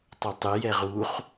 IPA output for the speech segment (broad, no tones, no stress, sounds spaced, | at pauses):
tˤ u tˤ ɨ j ɛ ʁ u χ